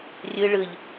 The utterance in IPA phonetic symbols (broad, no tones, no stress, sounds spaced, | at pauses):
rʲ ɯ ɭ ɯ ʎ